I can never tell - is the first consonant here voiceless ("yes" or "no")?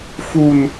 yes